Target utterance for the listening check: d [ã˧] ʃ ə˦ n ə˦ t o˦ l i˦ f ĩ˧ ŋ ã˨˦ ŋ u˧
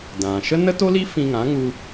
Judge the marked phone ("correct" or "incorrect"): incorrect